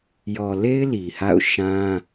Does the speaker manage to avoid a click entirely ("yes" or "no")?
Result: yes